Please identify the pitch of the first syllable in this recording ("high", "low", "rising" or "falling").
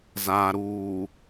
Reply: low